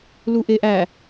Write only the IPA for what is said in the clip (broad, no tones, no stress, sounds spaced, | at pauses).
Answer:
l u ʔ e ʔ æ